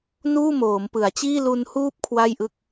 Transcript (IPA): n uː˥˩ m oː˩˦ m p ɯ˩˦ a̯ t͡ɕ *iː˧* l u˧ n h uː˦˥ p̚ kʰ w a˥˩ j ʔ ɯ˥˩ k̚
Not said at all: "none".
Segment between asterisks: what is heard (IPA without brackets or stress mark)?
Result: iː˥˩